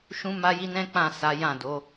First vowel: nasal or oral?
nasal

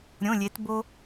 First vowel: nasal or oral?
nasal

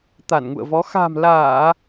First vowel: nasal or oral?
oral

